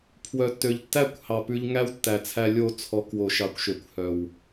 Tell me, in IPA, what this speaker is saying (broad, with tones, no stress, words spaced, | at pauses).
pʰwœ˨tːø˨ʎtːæ˦˨kʷhɑ˨ pʉ˧ʎŋæ˦w tːæ˨t͡sʰæ˧lʲo˦˨ t͡sʰɔ˨˦kwo˨ ʃɑ˨kʷʃø˨kʷ hœ˨w